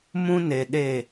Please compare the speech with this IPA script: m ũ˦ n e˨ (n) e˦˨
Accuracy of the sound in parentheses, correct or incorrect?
incorrect